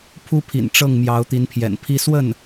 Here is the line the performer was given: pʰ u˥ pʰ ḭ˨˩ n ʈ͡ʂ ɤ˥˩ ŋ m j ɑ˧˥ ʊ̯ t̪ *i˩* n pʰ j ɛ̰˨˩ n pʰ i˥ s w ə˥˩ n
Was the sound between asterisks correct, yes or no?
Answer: no